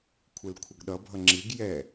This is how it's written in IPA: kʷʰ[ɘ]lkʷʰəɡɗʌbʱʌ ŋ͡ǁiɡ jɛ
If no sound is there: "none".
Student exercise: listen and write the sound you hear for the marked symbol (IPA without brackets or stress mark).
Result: ɘ